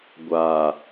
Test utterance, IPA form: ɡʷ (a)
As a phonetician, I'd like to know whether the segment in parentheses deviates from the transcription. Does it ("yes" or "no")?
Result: no